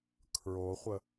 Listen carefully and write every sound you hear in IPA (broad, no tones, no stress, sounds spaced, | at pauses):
kʰ ɹ o χʷ ə